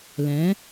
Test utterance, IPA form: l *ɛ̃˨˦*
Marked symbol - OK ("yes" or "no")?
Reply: yes